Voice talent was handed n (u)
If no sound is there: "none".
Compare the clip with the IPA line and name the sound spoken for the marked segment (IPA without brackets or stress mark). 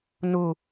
u